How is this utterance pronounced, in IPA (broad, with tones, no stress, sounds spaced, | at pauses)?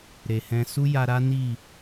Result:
ɾ e˨ h ɛ̃˧ s u˦ j a˧ ɾ a˦ n i˦˨